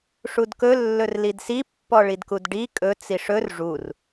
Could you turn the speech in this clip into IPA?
ʂudkɵ lːɵrlidsi pːɔɭidkudɖi kʼɵ t͡siʂɵr ʐur

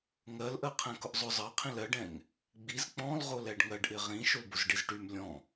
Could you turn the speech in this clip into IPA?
ŋɜlʔɜ qʰɛ̃kʊʔzˤʊ zˤɜqʰĩl ɜɖɛ̃ŋ | ɡ͡biz k͡pɔ̃lʁol ɛɖŋɜɖʔɪ ʁĩ ʃolbʊzɖizʈym lʲɔ̃

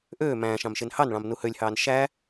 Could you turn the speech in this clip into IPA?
ʔøː mæ̃ːʃɑ̃mʃen hɑnɭɑ̃mnu hølʲhɑːn ʃæ

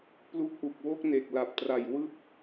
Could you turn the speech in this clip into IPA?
plu˦˥k̚ʔu˨˩k̚ wo˥˩k̚ne˨˩k̚la˨˩p̚tra˨˩j wɯ˦˥k̚

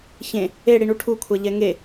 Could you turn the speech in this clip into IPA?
çẽ | e ɽiɳuʈʰukʷʰa ʎɛŋe

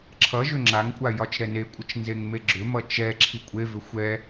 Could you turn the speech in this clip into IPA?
ǁʰʌʒʏ ŋ͡ǁaŋkʷʼa jɒt͡ʃɾɛnekʷʼʌt͡ʃ nzeŋmeɡ͡ǁʏmʌ t͡ʃɛ ǁʰikʷʼevʏ xʷɛ

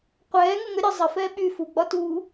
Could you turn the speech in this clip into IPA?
qʷɛː ŋəŋə ɾʲɒzˤəfɛː ɓy fuɡ͡bɒ tuː

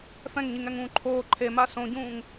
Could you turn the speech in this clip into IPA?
fɛ̃ŋɲiŋɛŋũː ǃʰoː ǃʰema sõɟũːŋ

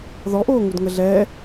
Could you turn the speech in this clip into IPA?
ðɔʔoːŋudŋə ɮɛː

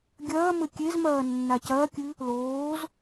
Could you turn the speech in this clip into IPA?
ɡʲɐː mɘkʲezmɐː nːacɐːkʲɨ | loːz

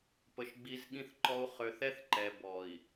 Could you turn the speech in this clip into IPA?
pə˨ʃɡ͡bi˨z ɠĩ˨θǃɔ˨u̯ χø˨θɛ˦θǃɛ˨ bɔ˨i̯

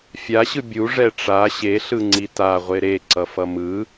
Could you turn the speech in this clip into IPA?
fʲaɕɯ bʲu ʐɛʈ͡ʂa ɕeɬɯ ŋ͡ǀitaʁʷe ɾeǀʌ fʌmɯ

